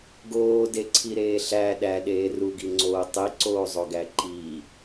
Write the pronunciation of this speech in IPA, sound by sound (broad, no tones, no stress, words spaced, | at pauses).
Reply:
ɡoːdeǀʰiɾeː ɬæ ɗæɗeː ruɡiŋ͡ǀoː tˤiǀoːzˤoɡæ ǃi